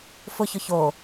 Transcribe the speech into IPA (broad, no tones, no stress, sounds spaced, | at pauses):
f ʊ ç ʊ ç o